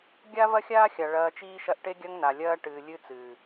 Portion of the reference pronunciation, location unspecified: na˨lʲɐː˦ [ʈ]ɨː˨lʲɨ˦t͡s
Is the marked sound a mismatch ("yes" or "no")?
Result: no